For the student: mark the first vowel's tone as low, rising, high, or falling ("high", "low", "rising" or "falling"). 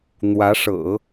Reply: rising